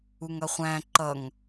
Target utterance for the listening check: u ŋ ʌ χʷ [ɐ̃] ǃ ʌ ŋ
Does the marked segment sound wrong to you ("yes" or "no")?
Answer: yes